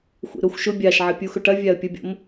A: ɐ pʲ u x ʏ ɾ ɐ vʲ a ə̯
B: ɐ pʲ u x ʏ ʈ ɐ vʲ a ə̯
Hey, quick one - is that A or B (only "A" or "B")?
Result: B